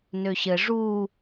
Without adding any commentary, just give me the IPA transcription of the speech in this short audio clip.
nøɕɘ ʐu

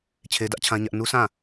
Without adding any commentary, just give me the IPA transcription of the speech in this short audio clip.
t͡ɕʰe˦dä˦ʔt͡ɕʰã˦ɲä˦ʔ nu˦sʰã˦˨

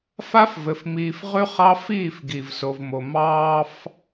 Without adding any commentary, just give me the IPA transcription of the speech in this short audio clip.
fa˦fvɘ˨fmiː˨f ʁʉ˦χɑ˦fiː˦˨f ɡi˨vso˨vmo˨ mɑː˦f

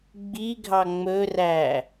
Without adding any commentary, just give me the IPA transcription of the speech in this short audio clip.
ɡ͡biɡʱɑ ŋ͡mɵræ

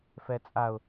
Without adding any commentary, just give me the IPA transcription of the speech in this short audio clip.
fɛt͡sʼaʊ̯

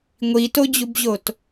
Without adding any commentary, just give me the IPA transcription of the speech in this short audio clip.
ŋʷitod͡ʑubʑot

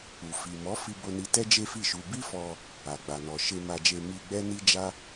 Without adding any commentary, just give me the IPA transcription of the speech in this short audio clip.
u˨ fi˨ mɔ˨˦fi˧ bo˦ni˦ tɛ˦d͡ʒe˦fi˦˨ʃu˧ bi˦fɔ˧ | a˨ ɡ͡ba˨nɔ˨ ʃe˧ ma˧d͡ʒe˧ mi˧ ɡ͡bɛ˦ni˦d͡ʒa˦

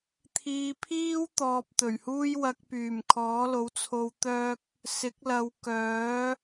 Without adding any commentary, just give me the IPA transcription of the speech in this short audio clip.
t̪ʰiː˧pʰiː˥wt̪ɔː˨p̚ t̪ɵ˨˩ɥhuː˥j wɐ˧k̚pyː˨˩m kʰɔː˨˥lo˨˥wt͡sʰo˧w t̪œː˥k̚ | sɪ˨˥k̚ lɐ˨˧wkœː˨˥

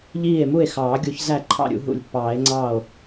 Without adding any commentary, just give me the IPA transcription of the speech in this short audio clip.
ʎiː˥˩e̯ mu˥˩e̯xɑː˨˩˦ ɡʲu˨˩˦çzæ˥˩ ǃʰɑ̰˥˩ɾʲṵ˨˩˦ ɦṵ˨˩˦lʲpːɑː˨˩˦e̯ŋ͡ǀɑː˥˩o̯

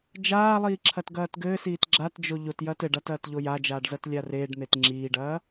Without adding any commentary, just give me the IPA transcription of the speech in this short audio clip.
d͡ʒaːlˠiː ǁʰɐtɡɐːtɡɘːsiːt ɡ͡ǁatd͡ʒo ʎotjɐːt ɘɖat ɐːtʎojad͡ʒaːɖ zɐtlʲareːɖn̪et ŋ͡ǁiːɖɐː

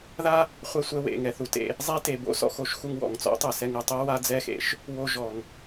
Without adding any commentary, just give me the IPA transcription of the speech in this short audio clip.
ða˥ | χʷɛ˧sʷɛ˧wḛ˩ ŋɛ˩θu˩tḛ˧ | zˤe˥te˩bo̰˥ sɔ̰˧xo˧ʃ xu˧ŋwɔ̰˩ŋt͡sɔ̰˥tˤɯ˩ sɛ˧ŋɯ˩tˤe˥ wa˥d͡zɛ˥xḛ˥ʃ | wo˧ʒɔ˩ŋ

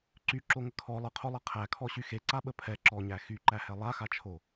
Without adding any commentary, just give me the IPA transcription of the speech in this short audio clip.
ǀyǁoŋə kʰɔ lˠəqʰolˠɛ qʰækʰɔɕy xeǀaɓə pʰɛ ǁɔɲæ xyǃæhɛ lˠaxat͡ʃʰo

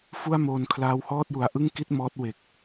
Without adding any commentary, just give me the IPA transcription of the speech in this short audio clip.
fu˥˩a̯moː˧n kʰlaː˦˥whɔː˥˩t̚ju˨˩a̯ ʔɯ˥˩ŋki˥˩t̚ mɔː˦˥t̚we˨˩k̚

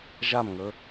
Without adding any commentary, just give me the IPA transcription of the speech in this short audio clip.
ʒamŋɵ

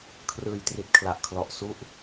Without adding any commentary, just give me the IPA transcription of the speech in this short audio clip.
kʰrɯː˨˩jtri˨˩t̚kʰla˨˩ʔkʰlɔ˨˩ʔ su˥˩ʔ

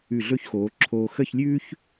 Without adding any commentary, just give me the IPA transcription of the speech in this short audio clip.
ʉ˧˩ɮɵ˥˧çxoː˩˧ǁʰoː˧ xə˥˧çlʲʉː˥ç

